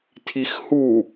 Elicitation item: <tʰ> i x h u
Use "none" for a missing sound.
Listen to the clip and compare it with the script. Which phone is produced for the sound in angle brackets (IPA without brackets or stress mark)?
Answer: tʰ